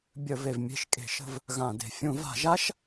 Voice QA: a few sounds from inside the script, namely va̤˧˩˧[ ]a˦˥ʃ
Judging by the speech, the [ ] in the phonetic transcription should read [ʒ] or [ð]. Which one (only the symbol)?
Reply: ʒ